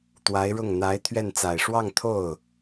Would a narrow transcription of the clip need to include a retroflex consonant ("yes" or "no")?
yes